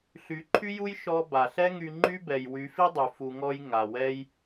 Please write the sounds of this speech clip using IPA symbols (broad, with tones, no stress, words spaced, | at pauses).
ɬy˨˦ǃʰy˦ju˦j ʃɔ˧ ba˨ɬɛ˦ ŋy˧ŋ͡ǃy˦bɛ˨j wy˨˦fi˦dˤy˨ fu˧ŋɔ˦j ŋa˨wɛ˦j